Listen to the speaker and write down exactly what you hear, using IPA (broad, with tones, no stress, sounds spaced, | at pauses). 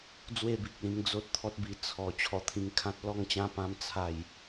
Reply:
d͡z w e˥˧ b i˨ k̚ l ĩ˧ ŋ d͡z o˦ t̚ t̪ʰ ɔ˦ t̚ b i˧ t͡sʰ ɔ˨˩ t͡ɕʰ ɔ˧ t̪ʰ ĩ˧ ŋ kʰ ã˦ t̚ l ɔ˥˧ ŋ t͡ɕ ã˦ p ã˦ m t͡sʰ a˥˧ j